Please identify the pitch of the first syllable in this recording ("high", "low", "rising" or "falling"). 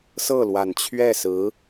falling